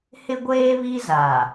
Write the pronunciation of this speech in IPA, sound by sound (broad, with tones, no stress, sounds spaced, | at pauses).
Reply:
h ɪ˦ ɡʷ eː˦ β i˦ z a˨